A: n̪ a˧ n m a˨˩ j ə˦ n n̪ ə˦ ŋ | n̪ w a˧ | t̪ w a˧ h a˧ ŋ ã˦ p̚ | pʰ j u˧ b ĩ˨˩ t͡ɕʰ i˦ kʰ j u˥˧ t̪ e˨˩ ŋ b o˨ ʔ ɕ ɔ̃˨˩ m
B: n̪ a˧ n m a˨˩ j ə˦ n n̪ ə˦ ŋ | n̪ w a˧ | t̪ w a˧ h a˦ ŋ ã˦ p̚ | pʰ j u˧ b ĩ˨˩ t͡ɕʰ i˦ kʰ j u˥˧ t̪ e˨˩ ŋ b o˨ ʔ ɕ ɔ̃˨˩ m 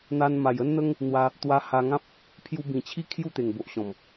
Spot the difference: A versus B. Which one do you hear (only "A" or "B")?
A